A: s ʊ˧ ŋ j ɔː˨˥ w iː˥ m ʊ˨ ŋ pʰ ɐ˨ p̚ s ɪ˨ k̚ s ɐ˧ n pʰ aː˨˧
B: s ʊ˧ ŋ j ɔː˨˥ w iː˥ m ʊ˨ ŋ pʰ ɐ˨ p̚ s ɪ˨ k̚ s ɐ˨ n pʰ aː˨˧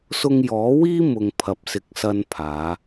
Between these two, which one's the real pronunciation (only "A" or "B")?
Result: A